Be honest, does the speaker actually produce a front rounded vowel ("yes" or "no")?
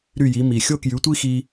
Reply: yes